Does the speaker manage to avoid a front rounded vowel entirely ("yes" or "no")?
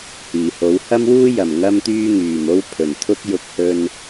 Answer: no